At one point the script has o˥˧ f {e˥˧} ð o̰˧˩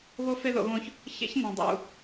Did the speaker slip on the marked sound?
no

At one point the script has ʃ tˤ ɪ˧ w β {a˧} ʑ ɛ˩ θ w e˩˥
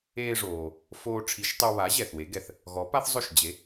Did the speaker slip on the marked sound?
yes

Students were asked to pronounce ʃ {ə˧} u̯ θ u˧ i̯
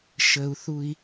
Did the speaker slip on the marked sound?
no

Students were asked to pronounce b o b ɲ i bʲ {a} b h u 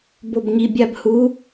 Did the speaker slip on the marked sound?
no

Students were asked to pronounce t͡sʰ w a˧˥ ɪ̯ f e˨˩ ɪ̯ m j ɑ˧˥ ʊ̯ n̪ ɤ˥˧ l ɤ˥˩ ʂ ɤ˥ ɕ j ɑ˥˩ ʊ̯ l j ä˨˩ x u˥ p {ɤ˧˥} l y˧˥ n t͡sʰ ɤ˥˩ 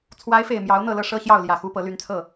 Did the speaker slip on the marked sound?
no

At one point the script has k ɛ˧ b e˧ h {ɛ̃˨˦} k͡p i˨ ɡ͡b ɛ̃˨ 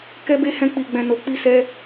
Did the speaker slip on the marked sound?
yes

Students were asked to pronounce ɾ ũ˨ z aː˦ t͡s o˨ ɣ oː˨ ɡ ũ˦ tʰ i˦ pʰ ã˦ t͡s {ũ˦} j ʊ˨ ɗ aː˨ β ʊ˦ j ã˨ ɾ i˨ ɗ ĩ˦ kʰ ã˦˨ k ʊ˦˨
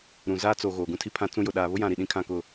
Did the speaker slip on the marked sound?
no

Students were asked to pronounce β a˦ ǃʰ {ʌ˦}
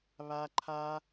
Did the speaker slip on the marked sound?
yes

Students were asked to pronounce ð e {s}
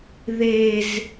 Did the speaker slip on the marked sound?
yes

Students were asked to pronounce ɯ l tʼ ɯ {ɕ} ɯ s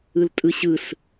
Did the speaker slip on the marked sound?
no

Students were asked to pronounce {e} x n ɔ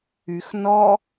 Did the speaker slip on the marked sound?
yes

